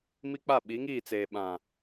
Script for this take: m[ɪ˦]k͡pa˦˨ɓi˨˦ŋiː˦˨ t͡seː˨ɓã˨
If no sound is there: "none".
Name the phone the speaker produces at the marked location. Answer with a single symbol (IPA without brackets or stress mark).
i˦